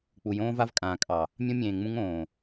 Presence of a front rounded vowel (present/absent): absent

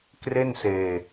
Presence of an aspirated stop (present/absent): absent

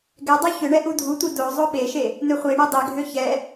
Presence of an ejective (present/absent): absent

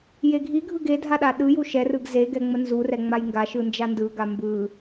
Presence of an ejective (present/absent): absent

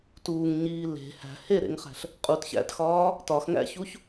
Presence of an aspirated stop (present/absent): absent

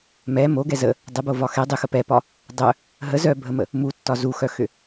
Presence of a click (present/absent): absent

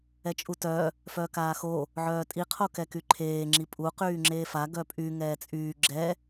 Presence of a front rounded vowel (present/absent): present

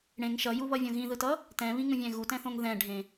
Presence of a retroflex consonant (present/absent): present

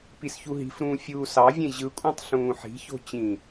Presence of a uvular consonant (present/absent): absent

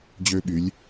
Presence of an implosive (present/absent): present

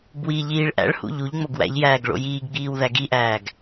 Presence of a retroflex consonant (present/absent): present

